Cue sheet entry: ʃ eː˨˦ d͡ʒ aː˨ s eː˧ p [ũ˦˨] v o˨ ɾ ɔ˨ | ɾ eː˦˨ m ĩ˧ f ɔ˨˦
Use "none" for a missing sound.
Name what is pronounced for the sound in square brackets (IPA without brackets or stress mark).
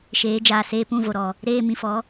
ũ˦˨